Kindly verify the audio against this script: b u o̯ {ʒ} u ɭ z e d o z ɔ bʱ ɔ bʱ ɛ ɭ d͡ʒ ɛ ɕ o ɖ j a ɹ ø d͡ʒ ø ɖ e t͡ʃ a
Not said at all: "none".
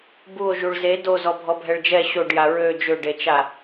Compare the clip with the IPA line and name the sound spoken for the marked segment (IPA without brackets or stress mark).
ʒ